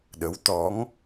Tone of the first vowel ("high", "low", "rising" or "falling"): rising